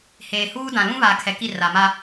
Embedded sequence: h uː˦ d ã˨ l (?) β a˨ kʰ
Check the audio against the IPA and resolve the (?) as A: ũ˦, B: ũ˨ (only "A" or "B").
A